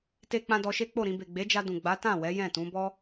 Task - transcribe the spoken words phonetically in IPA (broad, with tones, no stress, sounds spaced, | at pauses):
t e˧ k͡p ã˧ d ɔ˧ ʃ e˦ k͡p o˦˨ ɾ ĩ˧ b e˨ ɡ͡b e˨˦ d͡ʒ a˧ d ũ˨ ɡ͡b a˨˦ t ã˦˨ w ɛ˨˦ j ɛ̃˦˨ t ũ˨˦ b ɔ˦